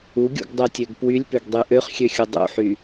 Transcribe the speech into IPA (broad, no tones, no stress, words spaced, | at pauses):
uɡʲṵɡdˤøtʲøɡ pwylʲpøɡdˤy ʔøχxʲøxʲu dˤṵħy